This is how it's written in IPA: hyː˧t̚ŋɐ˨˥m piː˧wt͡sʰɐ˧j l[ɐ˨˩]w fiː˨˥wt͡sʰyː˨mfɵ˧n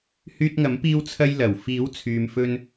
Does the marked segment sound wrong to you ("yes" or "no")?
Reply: no